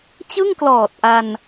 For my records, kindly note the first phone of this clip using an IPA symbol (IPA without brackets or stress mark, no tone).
t͡ɕ